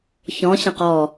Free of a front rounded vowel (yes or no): yes